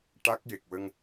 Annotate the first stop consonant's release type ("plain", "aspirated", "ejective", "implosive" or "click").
plain